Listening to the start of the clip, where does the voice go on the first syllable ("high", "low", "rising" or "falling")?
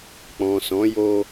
low